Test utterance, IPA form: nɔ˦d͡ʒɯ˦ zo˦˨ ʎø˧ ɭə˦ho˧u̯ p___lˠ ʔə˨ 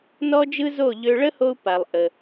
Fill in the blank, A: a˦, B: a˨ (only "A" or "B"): B